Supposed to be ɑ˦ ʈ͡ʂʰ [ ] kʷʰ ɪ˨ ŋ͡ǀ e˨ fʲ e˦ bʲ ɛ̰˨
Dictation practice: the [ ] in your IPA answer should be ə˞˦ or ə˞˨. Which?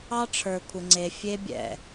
ə˞˨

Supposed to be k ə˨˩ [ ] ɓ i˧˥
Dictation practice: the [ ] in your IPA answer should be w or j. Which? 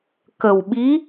w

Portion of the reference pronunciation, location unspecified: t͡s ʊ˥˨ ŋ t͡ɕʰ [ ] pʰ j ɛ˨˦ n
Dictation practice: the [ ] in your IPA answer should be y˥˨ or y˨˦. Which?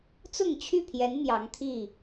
y˥˨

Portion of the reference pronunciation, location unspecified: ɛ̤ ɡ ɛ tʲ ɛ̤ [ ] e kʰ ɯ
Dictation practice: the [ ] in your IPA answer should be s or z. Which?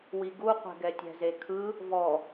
z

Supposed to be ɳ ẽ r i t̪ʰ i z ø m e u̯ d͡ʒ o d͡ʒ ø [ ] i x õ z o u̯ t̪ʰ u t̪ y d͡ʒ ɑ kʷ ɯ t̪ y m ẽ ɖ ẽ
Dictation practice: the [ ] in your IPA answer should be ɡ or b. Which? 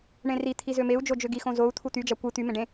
ɡ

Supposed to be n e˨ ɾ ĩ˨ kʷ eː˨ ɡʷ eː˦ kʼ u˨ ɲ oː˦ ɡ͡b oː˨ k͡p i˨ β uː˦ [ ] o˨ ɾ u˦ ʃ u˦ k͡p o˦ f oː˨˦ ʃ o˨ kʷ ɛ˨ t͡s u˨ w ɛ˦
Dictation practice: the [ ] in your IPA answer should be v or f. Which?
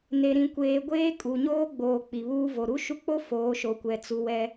v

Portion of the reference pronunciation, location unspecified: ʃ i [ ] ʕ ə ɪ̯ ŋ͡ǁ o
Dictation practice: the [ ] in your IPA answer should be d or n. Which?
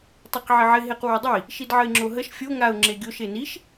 d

